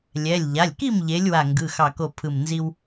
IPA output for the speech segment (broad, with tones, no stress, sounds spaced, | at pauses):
lʲ ɛ˩˧˩ lʲ ʎ a˩˧˩ lʲ k i˥˨ m ʎ e˨˦ lʲ w a˧˩ ŋ ɡ ɯ˩˧˩ x ɑ˧˩ k o˧˩ pʰ ɯ˧˩ m n z i˦ w